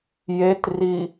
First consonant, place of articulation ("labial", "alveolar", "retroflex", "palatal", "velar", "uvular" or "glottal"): palatal